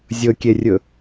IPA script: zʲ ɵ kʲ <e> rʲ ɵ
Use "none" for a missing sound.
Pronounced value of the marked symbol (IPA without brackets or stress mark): e